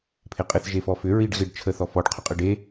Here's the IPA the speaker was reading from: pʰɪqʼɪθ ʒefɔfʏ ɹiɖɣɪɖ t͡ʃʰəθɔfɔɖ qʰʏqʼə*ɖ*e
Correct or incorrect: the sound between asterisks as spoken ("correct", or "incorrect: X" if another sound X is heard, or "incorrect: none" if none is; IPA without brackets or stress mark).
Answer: correct